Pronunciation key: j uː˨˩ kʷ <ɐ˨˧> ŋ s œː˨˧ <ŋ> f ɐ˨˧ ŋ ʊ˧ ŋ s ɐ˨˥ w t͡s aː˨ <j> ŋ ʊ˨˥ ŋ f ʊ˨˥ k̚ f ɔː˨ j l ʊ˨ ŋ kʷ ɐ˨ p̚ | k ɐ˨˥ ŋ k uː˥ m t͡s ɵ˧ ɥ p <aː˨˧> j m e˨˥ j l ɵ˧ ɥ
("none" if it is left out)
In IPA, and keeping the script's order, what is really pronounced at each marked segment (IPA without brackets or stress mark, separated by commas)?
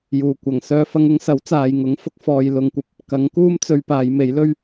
ɐ˨˩, none, j, aː˨˧